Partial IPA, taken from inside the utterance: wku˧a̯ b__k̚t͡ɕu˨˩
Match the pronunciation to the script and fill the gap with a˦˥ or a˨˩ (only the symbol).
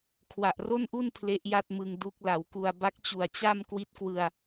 a˦˥